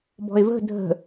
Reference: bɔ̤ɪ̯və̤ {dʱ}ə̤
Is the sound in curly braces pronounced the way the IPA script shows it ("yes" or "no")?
yes